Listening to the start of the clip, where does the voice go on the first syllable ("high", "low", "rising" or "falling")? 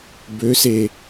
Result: rising